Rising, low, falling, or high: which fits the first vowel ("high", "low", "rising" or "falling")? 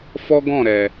high